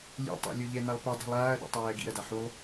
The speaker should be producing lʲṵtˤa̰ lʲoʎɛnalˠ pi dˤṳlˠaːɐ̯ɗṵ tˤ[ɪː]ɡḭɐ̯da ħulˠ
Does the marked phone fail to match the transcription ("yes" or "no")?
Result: yes